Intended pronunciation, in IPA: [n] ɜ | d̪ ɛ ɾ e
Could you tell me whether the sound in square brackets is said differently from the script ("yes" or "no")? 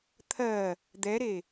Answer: yes